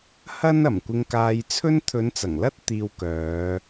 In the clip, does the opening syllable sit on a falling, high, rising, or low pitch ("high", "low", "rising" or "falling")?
high